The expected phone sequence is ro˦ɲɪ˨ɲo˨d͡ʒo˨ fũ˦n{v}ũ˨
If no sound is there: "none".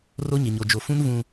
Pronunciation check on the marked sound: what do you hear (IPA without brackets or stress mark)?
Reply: v